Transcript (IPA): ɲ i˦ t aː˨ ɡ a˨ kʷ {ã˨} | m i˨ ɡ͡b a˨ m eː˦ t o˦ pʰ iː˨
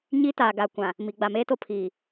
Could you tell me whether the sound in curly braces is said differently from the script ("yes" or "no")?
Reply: no